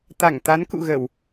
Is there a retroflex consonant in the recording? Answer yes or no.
no